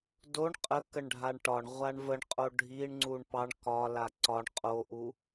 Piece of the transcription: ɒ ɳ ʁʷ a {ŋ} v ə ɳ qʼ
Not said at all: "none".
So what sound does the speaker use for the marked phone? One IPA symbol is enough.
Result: ɳ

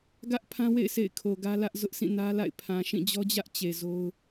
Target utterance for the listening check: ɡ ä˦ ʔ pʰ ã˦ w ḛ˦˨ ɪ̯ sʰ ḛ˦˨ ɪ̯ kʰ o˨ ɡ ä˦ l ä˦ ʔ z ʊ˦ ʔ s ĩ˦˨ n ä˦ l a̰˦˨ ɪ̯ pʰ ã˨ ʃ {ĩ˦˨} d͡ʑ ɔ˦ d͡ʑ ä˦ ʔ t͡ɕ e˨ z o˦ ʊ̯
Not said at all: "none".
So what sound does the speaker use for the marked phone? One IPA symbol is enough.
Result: ĩ˦˨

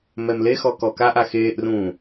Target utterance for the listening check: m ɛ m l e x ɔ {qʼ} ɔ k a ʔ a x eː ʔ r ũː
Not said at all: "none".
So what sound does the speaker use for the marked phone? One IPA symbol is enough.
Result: k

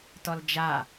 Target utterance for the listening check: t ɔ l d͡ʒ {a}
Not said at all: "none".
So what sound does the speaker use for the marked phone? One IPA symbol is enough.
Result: a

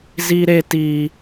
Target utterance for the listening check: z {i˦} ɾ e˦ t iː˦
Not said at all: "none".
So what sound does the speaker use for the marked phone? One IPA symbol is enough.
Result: i˦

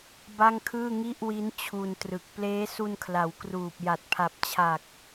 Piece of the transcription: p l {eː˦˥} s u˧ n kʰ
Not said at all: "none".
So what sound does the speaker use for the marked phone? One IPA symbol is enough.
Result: eː˦˥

